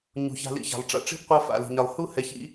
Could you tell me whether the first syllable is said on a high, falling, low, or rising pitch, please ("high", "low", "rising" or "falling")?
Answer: low